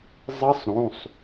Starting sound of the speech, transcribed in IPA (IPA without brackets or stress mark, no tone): zˤ